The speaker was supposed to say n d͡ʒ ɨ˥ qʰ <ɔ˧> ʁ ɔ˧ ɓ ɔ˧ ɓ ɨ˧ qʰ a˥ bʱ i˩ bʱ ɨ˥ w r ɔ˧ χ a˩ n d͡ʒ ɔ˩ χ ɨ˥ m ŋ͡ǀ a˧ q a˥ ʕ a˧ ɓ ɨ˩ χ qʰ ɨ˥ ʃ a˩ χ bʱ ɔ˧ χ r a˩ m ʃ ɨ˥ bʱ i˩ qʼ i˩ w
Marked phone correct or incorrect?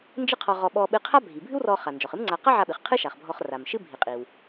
correct